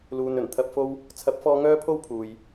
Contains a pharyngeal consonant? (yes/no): no